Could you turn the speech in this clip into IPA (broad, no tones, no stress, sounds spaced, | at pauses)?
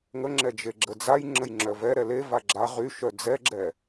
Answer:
ŋ ə ŋ͡ǁ ɛ d͡ʒ e ɡ͡ǁ ə d͡z a j ŋ͡ǁ ə j ŋ͡ǁ œ v ɛ ɾ ɛ l e v a ɡ͡ǁ a ʁ y ʃ œ d͡z ɛ ɡ͡ǁ ɛ